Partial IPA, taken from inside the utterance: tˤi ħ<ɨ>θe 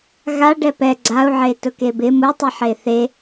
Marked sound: incorrect: e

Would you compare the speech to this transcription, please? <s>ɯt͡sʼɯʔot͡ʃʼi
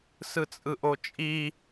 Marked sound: correct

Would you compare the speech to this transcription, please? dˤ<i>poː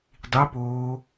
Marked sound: correct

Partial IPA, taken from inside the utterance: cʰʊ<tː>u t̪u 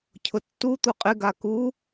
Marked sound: correct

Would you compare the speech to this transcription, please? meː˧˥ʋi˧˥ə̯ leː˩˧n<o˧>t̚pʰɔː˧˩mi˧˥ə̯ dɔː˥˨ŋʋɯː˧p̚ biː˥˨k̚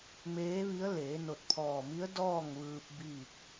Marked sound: incorrect: o˧˩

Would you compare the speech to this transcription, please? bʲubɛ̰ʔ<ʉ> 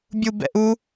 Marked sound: incorrect: u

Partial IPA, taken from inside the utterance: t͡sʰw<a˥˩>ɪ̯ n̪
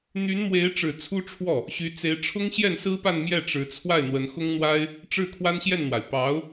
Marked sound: correct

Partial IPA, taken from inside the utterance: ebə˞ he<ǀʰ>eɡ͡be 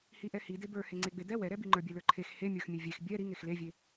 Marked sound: incorrect: ŋ͡ǀ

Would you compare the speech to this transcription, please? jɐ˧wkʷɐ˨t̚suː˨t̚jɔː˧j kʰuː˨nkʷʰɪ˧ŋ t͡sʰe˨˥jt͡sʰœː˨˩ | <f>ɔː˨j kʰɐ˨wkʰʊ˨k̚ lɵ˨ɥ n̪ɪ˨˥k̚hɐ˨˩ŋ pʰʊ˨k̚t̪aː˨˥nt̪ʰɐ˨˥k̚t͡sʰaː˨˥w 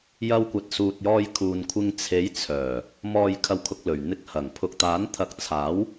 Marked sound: incorrect: m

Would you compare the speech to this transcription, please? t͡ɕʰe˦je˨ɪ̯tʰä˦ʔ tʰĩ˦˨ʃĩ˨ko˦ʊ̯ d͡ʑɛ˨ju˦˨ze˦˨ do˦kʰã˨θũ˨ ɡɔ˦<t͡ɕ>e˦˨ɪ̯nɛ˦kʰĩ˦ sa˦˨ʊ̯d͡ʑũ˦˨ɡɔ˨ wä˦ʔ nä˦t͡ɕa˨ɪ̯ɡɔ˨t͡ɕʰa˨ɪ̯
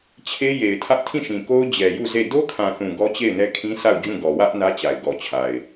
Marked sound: correct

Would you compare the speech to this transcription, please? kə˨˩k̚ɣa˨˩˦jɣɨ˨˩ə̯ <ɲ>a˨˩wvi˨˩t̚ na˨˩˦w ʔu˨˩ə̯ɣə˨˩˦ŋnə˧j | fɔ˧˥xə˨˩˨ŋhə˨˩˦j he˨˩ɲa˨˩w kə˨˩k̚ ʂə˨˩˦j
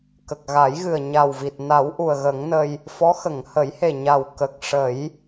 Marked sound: correct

